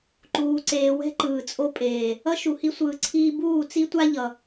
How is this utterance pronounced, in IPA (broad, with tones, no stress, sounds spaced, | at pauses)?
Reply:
ǃ uː˨ ǀ eː˨ w ɛ̤˦ ǃ ɯː˨ t͡sʼ o˦ pʼ eː˨ | ʌ˦ ʃ u˨ h i˦ sʷ ɯː˨ ǀʰ iː˦ b uː˦˨ t͡s i˦ tʷ a˦ ʎ ʌ˨